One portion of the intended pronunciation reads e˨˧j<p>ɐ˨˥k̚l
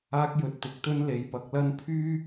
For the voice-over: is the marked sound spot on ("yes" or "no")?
yes